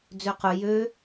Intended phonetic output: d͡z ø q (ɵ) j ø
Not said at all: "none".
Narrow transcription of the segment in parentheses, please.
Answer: ɵ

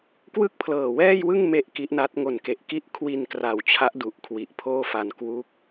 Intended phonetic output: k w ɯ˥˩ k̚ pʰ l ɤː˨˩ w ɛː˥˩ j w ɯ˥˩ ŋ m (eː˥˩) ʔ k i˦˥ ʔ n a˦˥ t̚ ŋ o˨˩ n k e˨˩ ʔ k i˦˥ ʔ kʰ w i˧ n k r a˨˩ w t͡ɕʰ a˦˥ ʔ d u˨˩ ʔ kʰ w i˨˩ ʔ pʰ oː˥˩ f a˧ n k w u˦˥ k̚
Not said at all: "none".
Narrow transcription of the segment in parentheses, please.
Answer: e˥˩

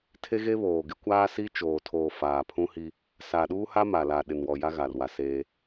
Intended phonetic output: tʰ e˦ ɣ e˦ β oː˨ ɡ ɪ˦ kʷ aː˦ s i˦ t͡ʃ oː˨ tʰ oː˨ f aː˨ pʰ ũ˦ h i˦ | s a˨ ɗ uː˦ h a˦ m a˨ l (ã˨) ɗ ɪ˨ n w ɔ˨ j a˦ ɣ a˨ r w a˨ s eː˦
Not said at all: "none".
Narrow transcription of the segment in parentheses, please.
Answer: a˨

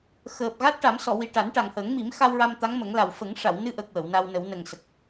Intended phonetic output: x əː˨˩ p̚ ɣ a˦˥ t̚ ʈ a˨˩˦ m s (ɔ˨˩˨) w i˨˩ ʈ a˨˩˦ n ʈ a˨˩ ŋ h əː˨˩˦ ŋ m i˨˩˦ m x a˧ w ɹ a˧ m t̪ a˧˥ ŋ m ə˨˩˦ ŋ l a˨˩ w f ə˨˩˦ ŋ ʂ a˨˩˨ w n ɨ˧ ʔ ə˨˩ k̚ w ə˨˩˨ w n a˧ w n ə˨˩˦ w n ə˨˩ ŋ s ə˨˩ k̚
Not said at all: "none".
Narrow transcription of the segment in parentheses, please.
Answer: ɔ˨˩˨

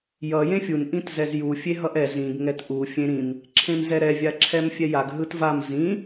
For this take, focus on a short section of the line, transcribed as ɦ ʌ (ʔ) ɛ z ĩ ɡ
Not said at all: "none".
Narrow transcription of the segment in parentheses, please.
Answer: ʔ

